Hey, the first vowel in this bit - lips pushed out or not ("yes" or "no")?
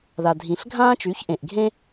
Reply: no